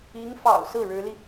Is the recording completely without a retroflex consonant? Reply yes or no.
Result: no